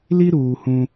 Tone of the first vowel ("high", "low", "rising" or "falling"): high